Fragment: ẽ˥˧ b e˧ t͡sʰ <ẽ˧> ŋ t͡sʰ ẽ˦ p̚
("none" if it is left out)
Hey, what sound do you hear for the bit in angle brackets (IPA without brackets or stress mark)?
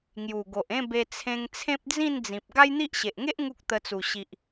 ẽ˧